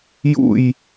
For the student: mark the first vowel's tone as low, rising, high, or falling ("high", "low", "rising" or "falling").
falling